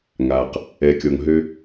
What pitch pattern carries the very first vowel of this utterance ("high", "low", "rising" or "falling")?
low